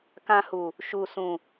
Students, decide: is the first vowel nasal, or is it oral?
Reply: nasal